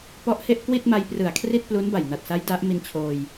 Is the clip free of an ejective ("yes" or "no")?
yes